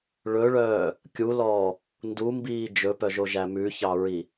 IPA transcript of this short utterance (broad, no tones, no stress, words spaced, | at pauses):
ɭɵɭœː | kʲulɔː | ndumbiː d͡ʒɵpœʒoʒæ mʉçɑɹi